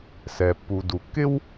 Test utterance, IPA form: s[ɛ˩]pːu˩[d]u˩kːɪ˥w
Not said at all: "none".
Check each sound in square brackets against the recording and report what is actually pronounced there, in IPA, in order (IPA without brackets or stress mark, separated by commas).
ɛ˩, d